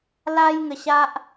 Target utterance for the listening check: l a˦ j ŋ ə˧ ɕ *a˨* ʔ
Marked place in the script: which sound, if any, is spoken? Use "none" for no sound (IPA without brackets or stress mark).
a˦